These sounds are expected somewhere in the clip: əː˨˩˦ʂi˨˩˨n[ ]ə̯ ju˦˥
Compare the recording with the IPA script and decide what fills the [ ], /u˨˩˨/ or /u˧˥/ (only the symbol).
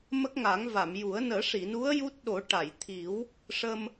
u˧˥